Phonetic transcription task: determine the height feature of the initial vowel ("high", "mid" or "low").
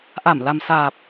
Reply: low